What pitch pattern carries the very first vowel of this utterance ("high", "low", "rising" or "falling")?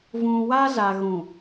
low